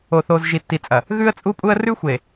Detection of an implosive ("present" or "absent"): absent